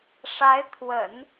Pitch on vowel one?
rising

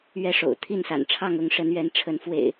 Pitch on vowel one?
falling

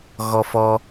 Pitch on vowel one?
high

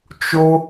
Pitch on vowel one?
high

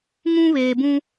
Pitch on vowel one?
high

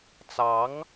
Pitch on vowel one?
rising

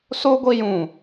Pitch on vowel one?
high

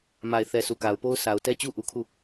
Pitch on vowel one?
low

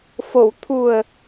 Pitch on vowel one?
low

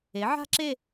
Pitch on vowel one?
rising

